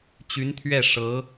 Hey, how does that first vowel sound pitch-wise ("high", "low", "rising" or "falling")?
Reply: rising